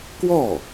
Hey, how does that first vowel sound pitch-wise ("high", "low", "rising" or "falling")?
falling